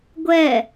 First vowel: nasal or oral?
oral